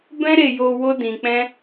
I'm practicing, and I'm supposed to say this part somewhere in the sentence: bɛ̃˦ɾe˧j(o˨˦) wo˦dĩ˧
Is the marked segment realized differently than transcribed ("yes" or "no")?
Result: yes